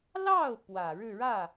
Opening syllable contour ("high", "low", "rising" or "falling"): falling